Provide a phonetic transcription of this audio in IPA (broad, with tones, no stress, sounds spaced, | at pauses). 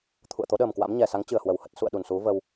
t̪ʰ ṵ˧˨ ə̯ t̪ o˨˦ ɗ əː˨˩ m k w a̰˧˥ m ɲ ɛ˨˩ s a˨˦ ŋ t͡ɕ ɨ˧˩ ə̯ h w ə˧˩ w h ə˦˥ t̚ s ṵ˧˨ ə̯ ɗ u˧˩ n s u˨˦ v ə˧ w